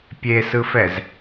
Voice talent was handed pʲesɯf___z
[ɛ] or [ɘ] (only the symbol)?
ɛ